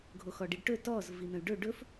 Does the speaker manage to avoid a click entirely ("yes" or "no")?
yes